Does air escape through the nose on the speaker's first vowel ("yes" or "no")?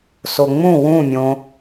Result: no